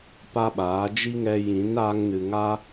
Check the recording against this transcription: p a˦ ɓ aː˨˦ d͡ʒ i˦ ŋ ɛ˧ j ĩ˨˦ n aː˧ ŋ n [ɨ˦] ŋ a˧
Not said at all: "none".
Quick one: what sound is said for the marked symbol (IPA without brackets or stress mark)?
ɨ˨